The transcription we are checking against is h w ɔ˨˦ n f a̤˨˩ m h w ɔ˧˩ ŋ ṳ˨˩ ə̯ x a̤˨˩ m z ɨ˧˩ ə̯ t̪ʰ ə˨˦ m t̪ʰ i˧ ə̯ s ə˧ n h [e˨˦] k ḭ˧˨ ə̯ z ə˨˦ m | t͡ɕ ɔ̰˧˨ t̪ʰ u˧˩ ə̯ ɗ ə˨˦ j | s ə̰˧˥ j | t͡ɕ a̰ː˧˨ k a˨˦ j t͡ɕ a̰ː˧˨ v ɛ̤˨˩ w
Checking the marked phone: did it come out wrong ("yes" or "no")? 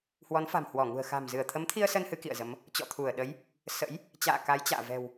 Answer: yes